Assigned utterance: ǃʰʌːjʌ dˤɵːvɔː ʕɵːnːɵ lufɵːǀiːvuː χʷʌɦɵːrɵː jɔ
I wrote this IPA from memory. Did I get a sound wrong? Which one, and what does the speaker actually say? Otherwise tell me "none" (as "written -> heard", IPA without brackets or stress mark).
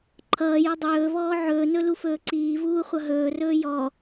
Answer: nː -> n